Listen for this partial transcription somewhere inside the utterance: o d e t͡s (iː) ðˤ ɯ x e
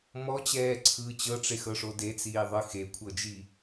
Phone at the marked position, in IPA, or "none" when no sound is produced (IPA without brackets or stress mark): iː